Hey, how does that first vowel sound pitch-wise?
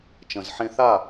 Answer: low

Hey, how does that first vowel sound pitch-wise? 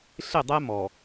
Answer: falling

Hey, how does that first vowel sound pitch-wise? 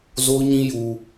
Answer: high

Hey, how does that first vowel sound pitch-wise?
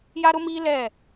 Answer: high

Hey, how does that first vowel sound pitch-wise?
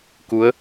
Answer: rising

